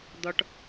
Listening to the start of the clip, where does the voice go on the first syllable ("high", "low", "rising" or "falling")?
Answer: low